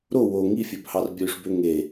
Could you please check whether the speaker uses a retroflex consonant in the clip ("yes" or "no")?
yes